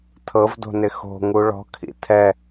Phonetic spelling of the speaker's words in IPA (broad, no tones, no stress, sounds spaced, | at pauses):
tʰ ɤ v d o̤ n ɪ x o̤ ŋ u ɭ ɔ̤ kʰ ḭ tʰ ɛ